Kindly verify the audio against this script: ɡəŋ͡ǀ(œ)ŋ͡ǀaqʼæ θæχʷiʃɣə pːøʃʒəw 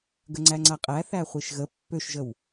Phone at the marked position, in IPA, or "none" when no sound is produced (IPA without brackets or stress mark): æ